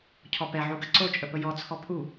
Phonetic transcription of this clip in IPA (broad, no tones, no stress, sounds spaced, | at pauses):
cʰ ɔ p ɛ ʕ u ɡ ɐ ǀ o t͡ʃʼ ə p ə j ɔ t͡sʰ ɔ pʰ u